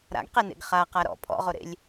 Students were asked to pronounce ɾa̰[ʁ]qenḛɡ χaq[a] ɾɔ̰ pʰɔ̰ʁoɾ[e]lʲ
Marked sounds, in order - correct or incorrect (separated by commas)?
incorrect, correct, incorrect